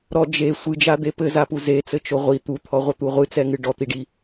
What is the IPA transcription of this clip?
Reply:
ɾɔ d͡ʒe sʷɨd͡ʒad̪e pɘzapu zet͡sɘt͡ʃo ʁʷi t̪ut̪ʰɔʁʷɘt̪u ʁʷɨt͡sɛŋɨ ɖɔt̪iɖi

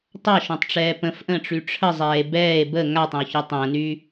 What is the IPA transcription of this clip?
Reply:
tˤaʃõtˤʈ͡ʂɛː pə̃fʔə̃ːʈ͡ʂy ʈ͡ʂʰəzˤɛːe̯ bɛːe̯ bə ŋatˤə̃o̯çɔ tˤə̃ːnyː

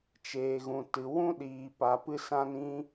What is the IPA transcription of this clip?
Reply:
t͡ʃeː˨ɣũ˨ tɨ˨wũ˦ ɗiː˨pa˨pɨ˧sã˧n ĩ˦

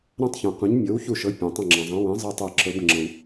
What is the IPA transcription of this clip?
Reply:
ɾã˥tˤçũ˨qũ˨˥ɲ mʲɤ˨˥wçu˦˨ʃɤ˨˥ pʲã˨tˤɐ̃˦˨ŋ͡ǁã˨zˤã˨˥ wẽ˨˥ zˤə˥y̯tˤɛ˦˨ǁɤ˨˥b ŋ͡ǁɐ̃˨w

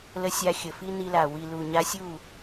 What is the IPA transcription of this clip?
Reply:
lə˧sʲa˧ xʲə˨fi˦ni˧la˨ wi˨lu˨ ɲa˧sʲu˦˨

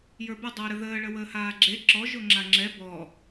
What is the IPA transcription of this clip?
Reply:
jə˞bə dˤəːɾəðəː ɭəwəːhaːɡ͡ǁe ǁɔ ʒoŋ͡ǁaŋ͡ǁɛ bɔ

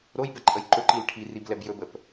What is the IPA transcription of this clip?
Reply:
ɾojbɛ ǃʼəjǃɵ ǃilʈʰiriblɛb jɵbəp

